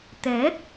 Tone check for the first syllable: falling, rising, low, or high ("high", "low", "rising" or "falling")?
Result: rising